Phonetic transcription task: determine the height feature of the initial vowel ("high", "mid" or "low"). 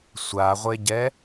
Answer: low